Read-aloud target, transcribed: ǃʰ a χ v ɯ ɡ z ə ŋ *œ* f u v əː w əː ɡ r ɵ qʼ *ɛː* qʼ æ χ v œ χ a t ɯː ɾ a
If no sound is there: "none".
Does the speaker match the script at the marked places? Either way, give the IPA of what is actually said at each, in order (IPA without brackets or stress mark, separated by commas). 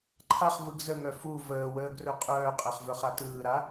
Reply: œ, œː